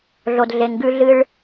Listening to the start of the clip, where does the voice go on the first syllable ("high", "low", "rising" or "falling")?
low